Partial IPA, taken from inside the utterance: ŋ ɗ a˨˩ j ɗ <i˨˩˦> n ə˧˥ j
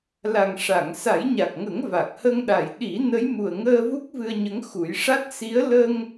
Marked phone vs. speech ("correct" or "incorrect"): correct